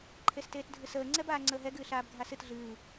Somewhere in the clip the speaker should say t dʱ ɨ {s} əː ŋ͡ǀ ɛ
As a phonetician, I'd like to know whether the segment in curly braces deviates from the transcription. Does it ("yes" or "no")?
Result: no